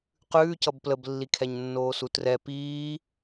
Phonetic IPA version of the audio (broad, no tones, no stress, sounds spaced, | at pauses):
q ʉː c ʌ b p l ə b lː i kʰ ɛ ɲ nː oː s u t r ɛ p iː